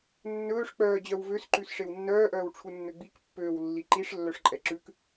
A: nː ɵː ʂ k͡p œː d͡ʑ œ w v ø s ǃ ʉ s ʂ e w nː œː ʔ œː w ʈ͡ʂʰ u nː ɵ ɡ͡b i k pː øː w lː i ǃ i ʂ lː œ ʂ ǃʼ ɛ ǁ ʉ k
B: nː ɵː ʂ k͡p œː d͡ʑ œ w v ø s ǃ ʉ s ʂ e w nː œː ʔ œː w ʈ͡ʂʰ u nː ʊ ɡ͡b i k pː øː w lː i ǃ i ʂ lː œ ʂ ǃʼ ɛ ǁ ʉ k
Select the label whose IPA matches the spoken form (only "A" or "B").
A